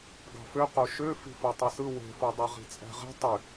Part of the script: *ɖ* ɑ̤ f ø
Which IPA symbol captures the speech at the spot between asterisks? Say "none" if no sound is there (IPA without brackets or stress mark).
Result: ɡ